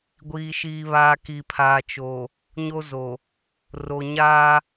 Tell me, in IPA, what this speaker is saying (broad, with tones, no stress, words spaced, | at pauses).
ɡʷiː˨ʃiː˨βaː˨ ki˨pʰaː˨t͡ʃo˨ | ɲo˦zo˨ | ro˨ɲaː˦